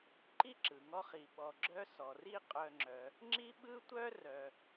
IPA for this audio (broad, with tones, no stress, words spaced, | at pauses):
ǃi˥ǁɯ˩ŋɔ˦χi˨ ɓɔ˨ɡ͡ǁœ˦ sɔ˩ri˦ qʼœ˨ŋ͡ǁœ˩ | ŋ͡ǁi˥ɓɯ˥tʷœ˥rœ˨